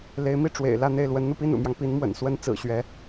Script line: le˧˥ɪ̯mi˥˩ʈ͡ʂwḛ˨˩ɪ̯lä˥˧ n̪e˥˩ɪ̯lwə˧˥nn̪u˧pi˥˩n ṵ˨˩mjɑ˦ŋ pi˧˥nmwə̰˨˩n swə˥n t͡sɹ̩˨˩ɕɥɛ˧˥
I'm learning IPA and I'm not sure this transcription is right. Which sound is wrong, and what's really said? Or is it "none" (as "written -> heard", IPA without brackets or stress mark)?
none